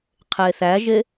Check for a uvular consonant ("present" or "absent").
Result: present